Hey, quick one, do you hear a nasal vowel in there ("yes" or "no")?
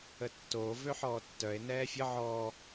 no